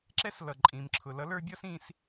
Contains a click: yes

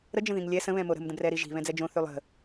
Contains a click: no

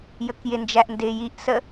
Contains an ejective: no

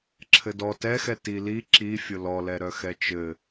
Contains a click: yes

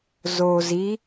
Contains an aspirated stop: no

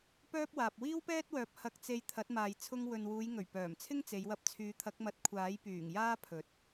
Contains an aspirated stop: yes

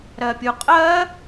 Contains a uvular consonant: yes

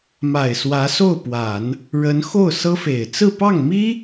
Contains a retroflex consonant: yes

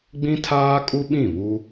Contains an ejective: yes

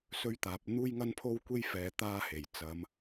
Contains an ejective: no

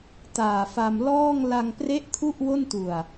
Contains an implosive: no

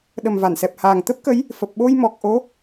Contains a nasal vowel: no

